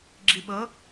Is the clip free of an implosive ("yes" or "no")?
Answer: no